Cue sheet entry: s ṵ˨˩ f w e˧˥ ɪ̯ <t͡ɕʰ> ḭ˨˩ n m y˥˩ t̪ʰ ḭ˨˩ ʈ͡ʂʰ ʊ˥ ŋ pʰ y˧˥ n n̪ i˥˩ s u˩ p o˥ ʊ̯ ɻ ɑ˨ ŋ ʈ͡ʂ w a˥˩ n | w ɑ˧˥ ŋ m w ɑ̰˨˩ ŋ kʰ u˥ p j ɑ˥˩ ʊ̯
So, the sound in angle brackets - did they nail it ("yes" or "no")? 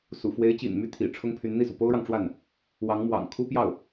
no